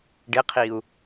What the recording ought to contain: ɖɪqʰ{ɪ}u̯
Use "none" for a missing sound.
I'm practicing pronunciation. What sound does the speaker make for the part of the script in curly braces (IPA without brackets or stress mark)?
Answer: i